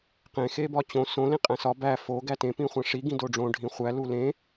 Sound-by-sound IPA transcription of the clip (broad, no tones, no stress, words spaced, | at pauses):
qẽ xebɒt͡ɕõ sõ lĩqʼæ̃sɒ bæ fo ɡætẽ pĩχʷæ̃ʂi ɡĩdoɖ͡ʐõ ɖʱĩχʷæ lulẽ